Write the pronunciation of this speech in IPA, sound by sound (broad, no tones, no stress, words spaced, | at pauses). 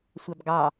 sʷɑbɡɑ